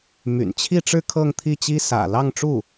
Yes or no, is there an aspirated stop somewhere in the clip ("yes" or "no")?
yes